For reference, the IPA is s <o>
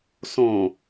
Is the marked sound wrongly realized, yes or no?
yes